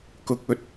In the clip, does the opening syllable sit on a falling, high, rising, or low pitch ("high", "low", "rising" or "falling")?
low